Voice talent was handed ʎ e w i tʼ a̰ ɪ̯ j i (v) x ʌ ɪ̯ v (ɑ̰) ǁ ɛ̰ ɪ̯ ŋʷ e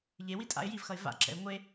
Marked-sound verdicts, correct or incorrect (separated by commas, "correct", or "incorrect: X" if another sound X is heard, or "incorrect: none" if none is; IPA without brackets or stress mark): correct, incorrect: a̰